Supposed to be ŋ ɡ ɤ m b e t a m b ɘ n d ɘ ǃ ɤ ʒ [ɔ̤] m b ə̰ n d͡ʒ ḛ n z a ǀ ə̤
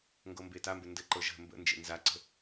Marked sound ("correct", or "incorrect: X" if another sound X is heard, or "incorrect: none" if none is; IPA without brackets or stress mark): incorrect: ə̤